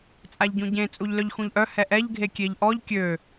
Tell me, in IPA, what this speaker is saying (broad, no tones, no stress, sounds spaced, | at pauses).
t͡sʼ a ʎ ɟ ũ ɟ ẽ t͡sʼ u ʎ l œ ʎ x ũ ʎ ʔ œ h ɛ ʔ ɛ ʎ ɡʱ e kʲ e ʎ ʔ ɔ ʎ kʲ ø